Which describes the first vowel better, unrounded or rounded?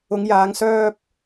rounded